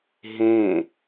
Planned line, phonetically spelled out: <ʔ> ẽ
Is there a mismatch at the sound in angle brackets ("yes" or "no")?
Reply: yes